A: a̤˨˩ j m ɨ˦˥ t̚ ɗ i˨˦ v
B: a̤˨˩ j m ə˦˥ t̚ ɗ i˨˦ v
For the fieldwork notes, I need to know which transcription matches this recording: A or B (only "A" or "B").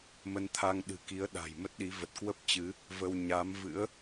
B